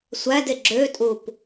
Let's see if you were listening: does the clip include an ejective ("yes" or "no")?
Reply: yes